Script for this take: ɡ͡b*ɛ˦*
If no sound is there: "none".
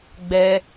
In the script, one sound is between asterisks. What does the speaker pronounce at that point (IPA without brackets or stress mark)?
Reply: ɛ˦